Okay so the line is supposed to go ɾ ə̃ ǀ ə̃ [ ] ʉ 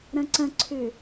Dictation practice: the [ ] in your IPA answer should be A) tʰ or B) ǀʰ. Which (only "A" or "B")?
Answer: B